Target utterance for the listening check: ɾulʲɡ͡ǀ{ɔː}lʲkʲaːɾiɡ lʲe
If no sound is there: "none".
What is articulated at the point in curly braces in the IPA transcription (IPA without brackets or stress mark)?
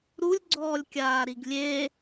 ɔː